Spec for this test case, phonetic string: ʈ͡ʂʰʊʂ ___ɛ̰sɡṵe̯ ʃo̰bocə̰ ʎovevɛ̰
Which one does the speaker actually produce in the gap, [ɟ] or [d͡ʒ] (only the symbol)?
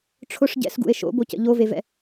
ɟ